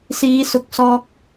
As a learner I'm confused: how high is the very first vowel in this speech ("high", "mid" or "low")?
high